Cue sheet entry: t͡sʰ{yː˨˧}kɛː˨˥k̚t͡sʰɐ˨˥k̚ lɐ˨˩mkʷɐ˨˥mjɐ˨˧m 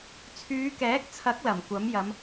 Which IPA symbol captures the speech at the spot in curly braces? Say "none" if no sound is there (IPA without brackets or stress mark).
yː˨˧